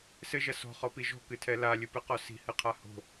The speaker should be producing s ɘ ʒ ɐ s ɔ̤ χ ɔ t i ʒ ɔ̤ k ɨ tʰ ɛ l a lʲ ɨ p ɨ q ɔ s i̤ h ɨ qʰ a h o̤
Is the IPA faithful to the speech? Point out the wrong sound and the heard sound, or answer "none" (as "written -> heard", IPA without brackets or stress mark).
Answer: t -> p